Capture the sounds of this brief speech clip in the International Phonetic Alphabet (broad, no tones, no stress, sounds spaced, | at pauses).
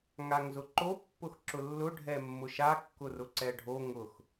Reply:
ŋ a ŋ z ʊ ǃ o pː ʊ x ǁ ʊ lː ʊ ɖʱ ɛ mː ʊ ʃ a kː ʊ r ʊ ǀ ɛ ɖʱ o ŋ ʊ x